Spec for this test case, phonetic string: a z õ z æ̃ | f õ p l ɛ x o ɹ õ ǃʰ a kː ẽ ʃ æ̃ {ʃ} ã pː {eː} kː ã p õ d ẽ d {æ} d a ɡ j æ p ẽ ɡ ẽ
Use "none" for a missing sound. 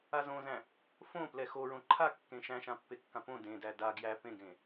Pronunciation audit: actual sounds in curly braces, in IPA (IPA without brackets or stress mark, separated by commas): ʃ, e, æ